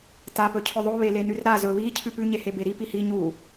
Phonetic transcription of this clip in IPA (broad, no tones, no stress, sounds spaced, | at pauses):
t a p ɵ cʰ ɵ ðˤ o β e l e n ʉ r ɾ a z ɵ β i cʰ ʉ p ʉ ɲ e h e b e ɾ i p i h i ɲ u